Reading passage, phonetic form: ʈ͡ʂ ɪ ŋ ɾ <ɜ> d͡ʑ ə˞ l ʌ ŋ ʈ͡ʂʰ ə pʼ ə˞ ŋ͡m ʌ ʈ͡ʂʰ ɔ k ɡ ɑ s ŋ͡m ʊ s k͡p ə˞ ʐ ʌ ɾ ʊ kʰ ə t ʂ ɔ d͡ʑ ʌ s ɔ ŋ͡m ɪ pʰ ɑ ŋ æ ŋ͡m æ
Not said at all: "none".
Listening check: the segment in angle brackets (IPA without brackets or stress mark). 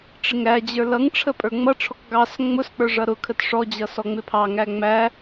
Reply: æ